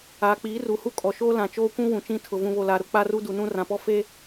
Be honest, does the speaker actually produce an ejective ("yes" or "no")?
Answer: yes